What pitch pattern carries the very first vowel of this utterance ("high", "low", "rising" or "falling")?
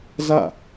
falling